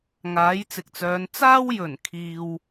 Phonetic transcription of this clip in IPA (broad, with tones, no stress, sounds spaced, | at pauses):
ŋ aː˨˥ j t͡s ɪ˨ k̚ t͡s œː˨˧ n t͡s aː˥ w j ɵ˨˩ n kʰ iː˧ w